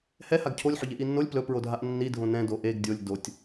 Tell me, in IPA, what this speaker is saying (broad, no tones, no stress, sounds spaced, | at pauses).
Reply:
h ɛ h a ɡ cʰ o lʲ ħ ɵ ʎ e ʔ i nː o lʲ p l ɵ p ɹ o dʱ a ʔ nː i dʱ õ n ɛ̃ d o ʔ e ɡ dʲ o lʲ d o tʲ